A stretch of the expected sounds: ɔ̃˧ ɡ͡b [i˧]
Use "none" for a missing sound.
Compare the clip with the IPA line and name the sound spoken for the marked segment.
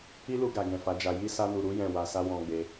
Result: e˧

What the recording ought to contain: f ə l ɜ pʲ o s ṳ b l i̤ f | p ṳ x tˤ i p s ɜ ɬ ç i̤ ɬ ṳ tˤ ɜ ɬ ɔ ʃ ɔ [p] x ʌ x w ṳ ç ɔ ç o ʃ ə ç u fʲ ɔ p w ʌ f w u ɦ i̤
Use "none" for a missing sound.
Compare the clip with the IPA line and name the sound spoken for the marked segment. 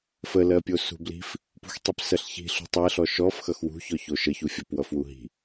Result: f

